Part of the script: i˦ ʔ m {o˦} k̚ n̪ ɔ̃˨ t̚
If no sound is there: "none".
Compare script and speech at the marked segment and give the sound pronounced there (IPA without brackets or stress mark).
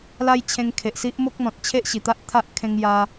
o˦